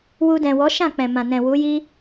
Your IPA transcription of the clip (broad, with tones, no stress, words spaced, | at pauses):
wu˧dɛ̃˨wɔ˨˦ ʃã˦˨k͡pɛ̃˨ mã˨nɛ̃˨ wu˨˦ji˦